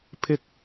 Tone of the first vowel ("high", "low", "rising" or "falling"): low